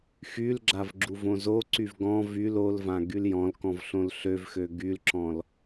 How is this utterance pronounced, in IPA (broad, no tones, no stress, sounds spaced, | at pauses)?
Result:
x y l ɡ͡ǁ a v ɡ͡ǁ u v õ z o ǀ y v ɡ ɔ̃ v y l o l v ã ɡ y l j ɔ̃ l k ɔ̃ v ɬ õ l ɬ ø v x ø ɡ y l ǁ ɔ̃ l